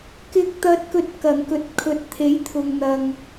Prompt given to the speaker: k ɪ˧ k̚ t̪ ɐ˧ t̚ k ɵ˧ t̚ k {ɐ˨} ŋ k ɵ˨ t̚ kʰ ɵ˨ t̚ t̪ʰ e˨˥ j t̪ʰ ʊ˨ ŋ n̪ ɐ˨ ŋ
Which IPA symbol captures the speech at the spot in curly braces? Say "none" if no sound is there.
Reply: ɐ˨˩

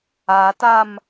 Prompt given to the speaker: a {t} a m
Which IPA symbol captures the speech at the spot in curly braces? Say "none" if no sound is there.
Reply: t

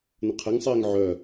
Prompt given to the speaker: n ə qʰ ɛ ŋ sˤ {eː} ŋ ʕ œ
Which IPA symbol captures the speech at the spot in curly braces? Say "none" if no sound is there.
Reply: eː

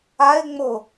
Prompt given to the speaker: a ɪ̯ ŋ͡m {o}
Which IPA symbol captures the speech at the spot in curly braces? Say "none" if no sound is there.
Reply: o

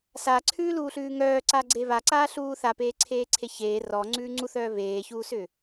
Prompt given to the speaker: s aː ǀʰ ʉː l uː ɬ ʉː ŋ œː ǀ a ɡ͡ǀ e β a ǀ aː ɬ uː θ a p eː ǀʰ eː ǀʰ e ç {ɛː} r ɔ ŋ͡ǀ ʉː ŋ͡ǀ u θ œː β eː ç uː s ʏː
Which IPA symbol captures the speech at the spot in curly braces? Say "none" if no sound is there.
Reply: eː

